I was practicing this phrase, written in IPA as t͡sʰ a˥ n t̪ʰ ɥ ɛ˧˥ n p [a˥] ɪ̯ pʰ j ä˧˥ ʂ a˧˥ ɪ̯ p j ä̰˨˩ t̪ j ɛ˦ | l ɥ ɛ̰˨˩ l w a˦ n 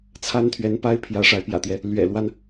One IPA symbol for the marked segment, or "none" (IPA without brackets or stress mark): a˥